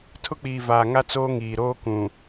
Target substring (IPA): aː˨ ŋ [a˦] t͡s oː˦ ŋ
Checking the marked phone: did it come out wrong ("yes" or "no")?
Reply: no